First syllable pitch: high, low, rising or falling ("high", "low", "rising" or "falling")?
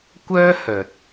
high